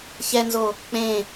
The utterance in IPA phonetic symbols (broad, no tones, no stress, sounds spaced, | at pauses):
ç ɛ n z o | k͡p ẽ